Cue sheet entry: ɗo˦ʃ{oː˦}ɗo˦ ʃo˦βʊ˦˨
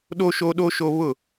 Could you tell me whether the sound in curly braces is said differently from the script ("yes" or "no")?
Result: no